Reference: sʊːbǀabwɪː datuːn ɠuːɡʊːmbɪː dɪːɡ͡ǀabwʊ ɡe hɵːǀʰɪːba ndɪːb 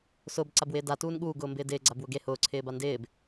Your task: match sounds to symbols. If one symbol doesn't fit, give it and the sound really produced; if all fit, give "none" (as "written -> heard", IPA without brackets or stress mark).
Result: ɵː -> ʊː